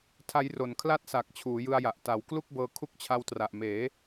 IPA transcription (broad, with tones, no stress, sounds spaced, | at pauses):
tʰ a˦˥ j r o˨˩ n kʰ l a˥˩ t̚ s a˨˩ k̚ t͡ɕʰ uː˩˦ j ɯ˧ a̯ j a˨˩ ʔ t a˨˩ w k l u˥˩ k̚ b ɤː˧ kʰ u˦˥ k̚ t͡ɕʰ a˧ w t r a˨˩ ʔ m eː˩˦